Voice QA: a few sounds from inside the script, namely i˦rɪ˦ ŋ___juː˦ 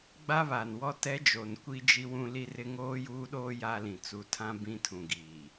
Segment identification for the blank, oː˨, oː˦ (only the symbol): oː˦